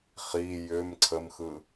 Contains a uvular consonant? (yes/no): yes